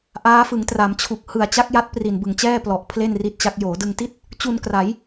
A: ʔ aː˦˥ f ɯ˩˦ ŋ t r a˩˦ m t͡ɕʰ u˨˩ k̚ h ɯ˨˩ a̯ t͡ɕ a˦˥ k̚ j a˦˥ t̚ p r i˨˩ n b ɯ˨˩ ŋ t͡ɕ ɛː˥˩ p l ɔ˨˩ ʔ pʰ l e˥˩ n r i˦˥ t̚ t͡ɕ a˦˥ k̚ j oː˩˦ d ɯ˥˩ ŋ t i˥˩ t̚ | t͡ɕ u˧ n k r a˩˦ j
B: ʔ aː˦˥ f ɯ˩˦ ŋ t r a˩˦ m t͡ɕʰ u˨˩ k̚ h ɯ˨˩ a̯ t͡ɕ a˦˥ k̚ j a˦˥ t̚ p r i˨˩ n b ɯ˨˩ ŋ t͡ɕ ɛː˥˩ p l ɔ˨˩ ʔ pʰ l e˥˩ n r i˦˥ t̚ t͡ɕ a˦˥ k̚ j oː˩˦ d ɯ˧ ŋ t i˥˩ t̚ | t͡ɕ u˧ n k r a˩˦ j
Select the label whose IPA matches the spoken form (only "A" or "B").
B